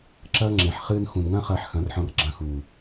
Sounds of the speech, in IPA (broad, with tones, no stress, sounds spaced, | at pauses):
ǁ ɐː˦ ŋ͡ǁ ẽ˨ ħ χ ɨː˧ n x ũ˨ n ŋ ɐ̃˦ χ ɐː˧ ħ x ɐ̃˨˦ r ħ ɔ̃˧ r ɡ͡ǁ ɐ̃˧ x uː˨